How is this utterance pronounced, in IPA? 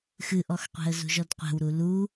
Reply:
x ɨ ʔ ɔ x qʷ ɛ̤ ə̯ z ṳ ʒ ɔ d qʷ ɛ̤ w ɾ u l u

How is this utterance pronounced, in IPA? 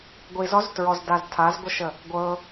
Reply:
ɡʷ i z ɔ z t ɹ ɔ z d a z tʰ a z ɡʷ ə ʃ ə | ɡʷ ɤ

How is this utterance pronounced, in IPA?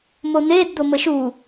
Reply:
m o n̪ e d d̪ o m ə ʃ u

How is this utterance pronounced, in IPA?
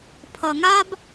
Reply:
pʰ ʌ˨ ŋ a˦ b

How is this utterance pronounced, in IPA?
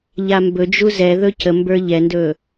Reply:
ʎ a m b ɵ d͡ʒ u z ɛ ð ɵ c ə m b ə˞ ʎ ɛ n d ɵ

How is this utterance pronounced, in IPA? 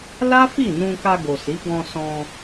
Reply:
l a˦ f i˦˨ n ũ˧ k a˧ ɡ o˨ s i˨˦ ɡ ɔ̃˧ s ɔ̃˧

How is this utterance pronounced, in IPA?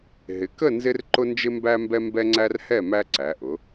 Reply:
ɦ ɪ˩˧ k ə˥˨ n z ɪ˦ r ǃ ʊ˦ n d͡ʒ ɪ˦ m b æ˦ m b ɛ˦ m b ɛ˦ ŋ͡ǀ æ˦ r h ɛ˥˨ m æ˦ ǀ æ˩˧ ʔ ʊ˩˧

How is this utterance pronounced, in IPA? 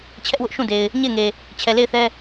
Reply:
t͡ɕʰ ɛ˦ ʔ w ʊ˦ ʔ ʃ ũ˦˨ d e˨ ɪ̯ | ɲ e˦˨ ɪ̯ ŋ e˨ | t͡ɕʰ ɛ˨ l e˦˨ ɪ̯ θ ɛ˦

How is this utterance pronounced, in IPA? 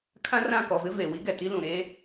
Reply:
kʰ ã˦ r ã˦˨ k ɔ˨ v ɪ˦ v e˨ w i˦ ɡ ɛ˨ t i˦ l ũ˨ ɾ e˦

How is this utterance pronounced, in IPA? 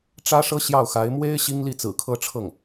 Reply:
ʈ͡ʂ ä˥ ʂ ɤ˥ ɕ j ɑ˥˩ ʊ̯ x a˧˥ ɪ̯ m w e˥ ɪ̯ ɕ i˥ ŋ l i˥˩ t͡s ɹ̩˨˩ kʰ ɤ˥ ʈ͡ʂʰ ɤ˥˩ ŋ

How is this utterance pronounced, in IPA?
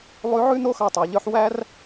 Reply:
lˠ ʉ˧˥ ʕ ʉ˥ n o˥ x ɑ˧ tˤ ɑ˩˧ ʎ œ˧˥ ħ w æ˥ r

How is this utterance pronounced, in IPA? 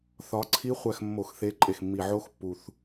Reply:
θ ɒ˨˦ ǀʰ i˦˥ χʷ æ˦˨ x mː o˧˩˧ x θ e˨˦ ǃʼ e˨˩ x mː i˨˩ ʕ o˦˥ x pː u˨˩ θ

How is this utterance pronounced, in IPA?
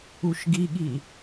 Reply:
u ʃ ɡ i ɠ i

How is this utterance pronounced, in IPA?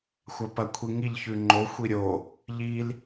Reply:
xʷ a p ɐ kʷʰ i ŋ i ʎ ç ʉ ŋ͡ǃ o xʷ i ɾʲ o | ʎ i l

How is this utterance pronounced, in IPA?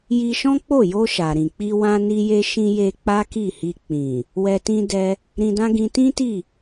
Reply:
j i˧ ʃ ɔ̃˦ k͡p o˦˨ j o˧ ʃ a˨ ɾ ĩ˨ k͡p i˧ w ã˧ n i˧ j e˧ ʃ ĩ˧ j e˧ k͡p a˦ k i˦˨ h i˧ k͡p ĩ˨ | w ɛ˧ t ĩ˦ d ɛ˧ | ɾ ĩ˧ d ã˦ ɡ ĩ˧ t ĩ˦ t i˦˨

